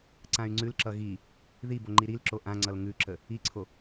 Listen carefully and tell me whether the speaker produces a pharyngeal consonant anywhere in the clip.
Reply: no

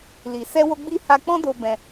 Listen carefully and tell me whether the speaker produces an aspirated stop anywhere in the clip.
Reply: no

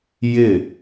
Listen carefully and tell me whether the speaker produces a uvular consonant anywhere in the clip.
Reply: no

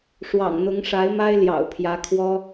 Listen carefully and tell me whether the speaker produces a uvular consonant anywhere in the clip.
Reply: no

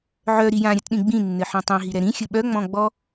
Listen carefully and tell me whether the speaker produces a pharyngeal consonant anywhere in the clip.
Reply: yes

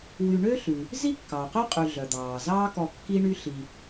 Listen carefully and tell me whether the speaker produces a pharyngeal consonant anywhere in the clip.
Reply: no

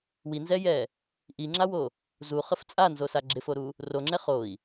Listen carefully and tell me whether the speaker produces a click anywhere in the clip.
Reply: yes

